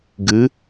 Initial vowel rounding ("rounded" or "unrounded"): unrounded